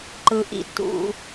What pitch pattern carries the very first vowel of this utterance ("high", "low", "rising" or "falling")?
low